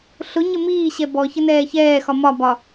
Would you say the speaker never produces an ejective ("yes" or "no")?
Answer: yes